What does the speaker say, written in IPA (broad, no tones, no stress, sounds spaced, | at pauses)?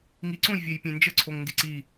ŋ i ǀ õ j vʲ e j pʲ ẽ n d͡ʒ ə ǀʰ o ŋ n d i ǀ i